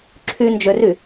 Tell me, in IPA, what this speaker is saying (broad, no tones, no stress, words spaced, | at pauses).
ǁʰynd͡ʒøry